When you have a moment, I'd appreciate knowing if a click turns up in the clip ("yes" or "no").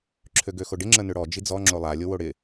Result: yes